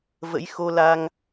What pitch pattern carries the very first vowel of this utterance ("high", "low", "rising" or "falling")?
rising